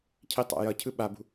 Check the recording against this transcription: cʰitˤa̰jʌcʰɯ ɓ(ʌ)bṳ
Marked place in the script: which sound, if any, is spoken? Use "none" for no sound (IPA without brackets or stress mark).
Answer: a